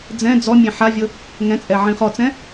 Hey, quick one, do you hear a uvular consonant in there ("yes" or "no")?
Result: yes